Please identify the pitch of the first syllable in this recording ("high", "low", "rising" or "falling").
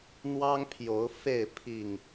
high